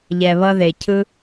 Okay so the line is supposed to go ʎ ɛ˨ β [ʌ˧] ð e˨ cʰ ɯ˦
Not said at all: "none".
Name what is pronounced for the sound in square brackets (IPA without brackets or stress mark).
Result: ʌ˧